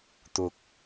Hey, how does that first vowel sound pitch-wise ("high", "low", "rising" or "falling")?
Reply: high